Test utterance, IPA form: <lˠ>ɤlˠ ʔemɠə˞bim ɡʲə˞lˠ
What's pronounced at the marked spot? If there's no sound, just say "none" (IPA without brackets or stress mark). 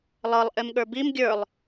lˠ